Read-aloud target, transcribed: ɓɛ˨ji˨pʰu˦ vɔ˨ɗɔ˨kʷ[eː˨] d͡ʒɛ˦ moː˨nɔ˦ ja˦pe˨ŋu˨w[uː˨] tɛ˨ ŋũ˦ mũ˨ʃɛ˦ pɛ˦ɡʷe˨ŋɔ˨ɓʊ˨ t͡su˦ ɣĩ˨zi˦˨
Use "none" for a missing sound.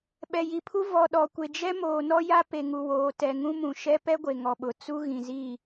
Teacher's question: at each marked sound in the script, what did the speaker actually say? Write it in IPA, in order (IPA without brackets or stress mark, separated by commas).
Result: e˨, oː˨